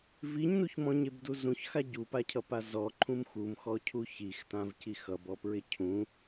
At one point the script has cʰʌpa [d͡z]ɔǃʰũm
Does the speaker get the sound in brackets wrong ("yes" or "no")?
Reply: yes